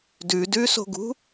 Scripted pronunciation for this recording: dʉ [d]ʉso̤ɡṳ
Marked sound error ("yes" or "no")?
no